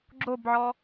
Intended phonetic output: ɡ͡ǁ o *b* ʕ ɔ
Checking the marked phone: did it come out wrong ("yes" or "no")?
no